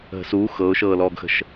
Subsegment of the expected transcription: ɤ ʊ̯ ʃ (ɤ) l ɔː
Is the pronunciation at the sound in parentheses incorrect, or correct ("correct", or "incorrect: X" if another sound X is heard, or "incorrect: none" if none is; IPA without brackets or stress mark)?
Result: incorrect: ɤː